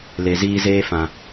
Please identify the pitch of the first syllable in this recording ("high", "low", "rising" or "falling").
low